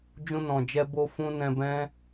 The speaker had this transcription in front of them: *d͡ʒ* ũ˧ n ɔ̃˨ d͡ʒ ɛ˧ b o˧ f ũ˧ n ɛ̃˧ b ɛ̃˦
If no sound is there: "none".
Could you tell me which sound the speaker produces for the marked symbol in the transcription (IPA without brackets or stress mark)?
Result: d͡ʒ